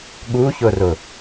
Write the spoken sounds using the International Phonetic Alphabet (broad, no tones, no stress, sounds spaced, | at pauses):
ɠ u ç ʊ r ʊ